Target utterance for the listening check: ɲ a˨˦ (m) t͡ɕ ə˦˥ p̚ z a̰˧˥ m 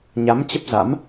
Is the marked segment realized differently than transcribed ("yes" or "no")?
no